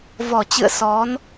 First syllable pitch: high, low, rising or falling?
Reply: low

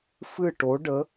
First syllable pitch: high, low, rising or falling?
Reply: falling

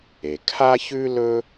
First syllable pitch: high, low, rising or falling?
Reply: low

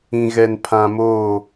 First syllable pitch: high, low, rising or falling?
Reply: low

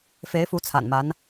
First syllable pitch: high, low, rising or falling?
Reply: rising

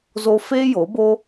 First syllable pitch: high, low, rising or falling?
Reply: high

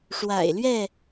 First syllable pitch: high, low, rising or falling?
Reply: low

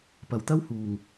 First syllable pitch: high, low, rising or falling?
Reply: low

